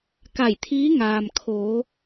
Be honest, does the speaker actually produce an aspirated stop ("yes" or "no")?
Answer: yes